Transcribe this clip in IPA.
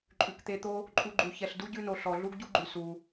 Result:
ǃʼ ʉ˨ k t̪ e˧ t̪ o˦ | ǃʼ u˧ ɡ͡ǃ u˨ ç ɛ˨ ɬ d u˦ ɟ ʉ˧ n o˨ ɬ ɔ˨ ɮ u˦ ɡ ɟ u˦ ɡ͡ǃ ʉ˨ s u˧

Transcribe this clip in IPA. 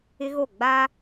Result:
ɪ˦ ɣ o˦˨ ɡ͡b a˦

